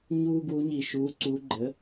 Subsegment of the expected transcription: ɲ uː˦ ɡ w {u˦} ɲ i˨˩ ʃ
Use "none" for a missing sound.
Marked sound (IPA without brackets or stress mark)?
u˨˦